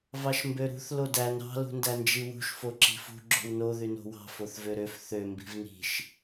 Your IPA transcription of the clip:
v ɑ ʃ m b ø ɾ ṳ θ l o d æ n ɾ ɑ̤ l ṳ n d æ n d͡ʒ i w ṳ ʃ f o ǁ i̤ f ṳ ɡ͡ǁ o̤ w n o ð y n o̤ w ɑ̤ f o θ v ø ɾ ø f θ ø m b i̤ v n i̤ ʃ

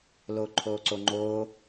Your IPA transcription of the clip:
l o ǃʰ o ǀ o ŋ͡ǃ o

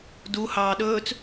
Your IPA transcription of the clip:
d u h ɑː ɗ ɵː t͡s

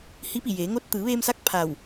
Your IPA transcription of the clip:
h i˧˥ p i˧˩ j eː˩˧ ŋ o˧ t̚ t̪ ɯː˩˧ ʋ eː˧ m s a˧˥ k̚ pʰ a˧˩ w

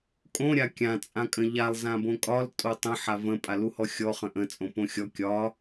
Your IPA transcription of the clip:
kʼ õ ɾʲ a kʲ ã t͡sʼ ã kʼ ə̃ ʎ a lˠ z ã b õ kʼ ɒ l tʼ o tˤ ə̃ ħ a v ə̃ pʼ a l u h ɔ xʲ ɔ χ ə̃ ʔ ə̃ t͡sʼ õ p õ xʲ ɔ kʲ ɒ

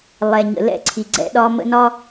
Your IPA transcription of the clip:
lˠ ɛ˨ ɲ ə̰˨ l ɛ̰˦˨ ǀʰ i˨ ɡ͡ǀ ɛ̰˦ ɗ ɒ˦ m ə̰˦ n ɒ˦

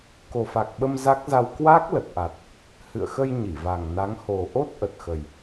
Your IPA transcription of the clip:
k o˨˩ f a˨˩ k̚ ɓ ə˧ m z a˦˥ k̚ z a˧ w k w a˦˥ k̚ l ə˨˩ t̚ ʔ a˨˩ t̚ | h ɨ̰˧˨ ə̯ x ə˧ j ɲ i˧˩ v a˨˩ ŋ n a˨˦ ŋ h o˨˩ ʔ o˦˥ t̚ ʔ ə˨˩ t̚ x ə˨˩ j

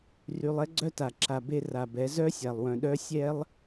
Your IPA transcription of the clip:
r y˧ lˠ ɛ˦ ɡ͡ǀ œ˦ t a˨ ǁ a˨ b e˧ r a˨ b ɛ˨˦ z œ˦ sʲ a˨ lˠ w œ̃˨ ɗ œ˦ sʲ ɛ˦ lˠ

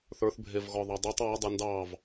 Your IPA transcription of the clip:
θ ə˞ θ bʱ e v ɣ ɔ ðˤ ɑ dˤ ɛ tˤ w ɒ dˤ e n d ɑ v

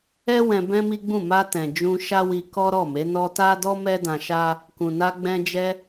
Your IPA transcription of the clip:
ɛ˦ w ɛ̃˧ b ɛ̃˦ m i˦ ɡ͡b ũ˦˨ m a˧ t ɛ̃˨ d͡ʒ ũ˧ ʃ a˦ w i˧ k ɔ˦ ɾ ɔ˦˨ m e˨˦ n ɔ˦ t a˦ d ɔ˦ m ɛ˦ d ã˧ ʃ a˦ | k ũ˨ n a˧ ɡ͡b ɛ̃˧ d͡ʒ ɛ˧

